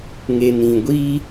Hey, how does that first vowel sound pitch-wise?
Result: low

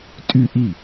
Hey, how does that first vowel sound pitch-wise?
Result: falling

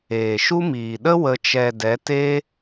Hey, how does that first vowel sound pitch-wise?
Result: low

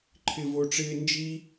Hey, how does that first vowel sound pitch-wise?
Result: high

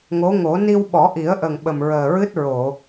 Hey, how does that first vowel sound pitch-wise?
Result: rising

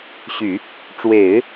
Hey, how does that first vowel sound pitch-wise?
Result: low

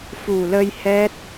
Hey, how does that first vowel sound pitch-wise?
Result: low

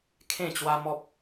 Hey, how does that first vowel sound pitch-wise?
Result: falling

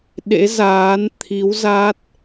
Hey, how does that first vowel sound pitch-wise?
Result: rising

